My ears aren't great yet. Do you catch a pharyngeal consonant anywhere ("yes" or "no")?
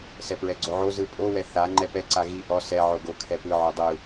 yes